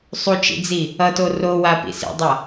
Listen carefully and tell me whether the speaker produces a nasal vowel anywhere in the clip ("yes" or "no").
no